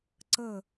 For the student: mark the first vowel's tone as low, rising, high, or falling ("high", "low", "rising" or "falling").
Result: falling